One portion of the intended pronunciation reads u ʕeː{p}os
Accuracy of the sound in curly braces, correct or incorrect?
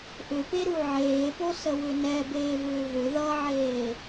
correct